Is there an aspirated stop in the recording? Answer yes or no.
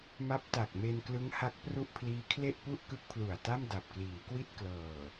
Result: yes